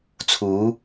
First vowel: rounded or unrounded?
rounded